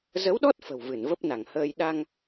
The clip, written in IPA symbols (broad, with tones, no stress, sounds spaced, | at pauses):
z ə˨˦ w ɗ ɔ˦˥ t̚ f ə̤˨˩ w v ɨ˧˩ n v ə˦˥ p̚ n a˧˩ ŋ h əː˧ j ɗ a˧ ŋ